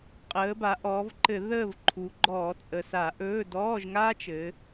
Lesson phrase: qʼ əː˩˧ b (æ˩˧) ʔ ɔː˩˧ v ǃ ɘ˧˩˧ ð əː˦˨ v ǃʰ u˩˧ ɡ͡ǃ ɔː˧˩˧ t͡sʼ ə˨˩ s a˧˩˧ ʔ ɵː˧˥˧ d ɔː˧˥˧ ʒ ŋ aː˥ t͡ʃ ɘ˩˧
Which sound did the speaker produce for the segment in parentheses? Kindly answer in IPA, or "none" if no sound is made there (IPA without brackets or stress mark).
a˩˧